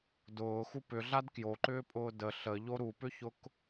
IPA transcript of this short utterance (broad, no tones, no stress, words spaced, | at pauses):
dʊːxu pʏɮad kjoǃʏːpʼʊː də ɬəʎo ɾupʏçʊk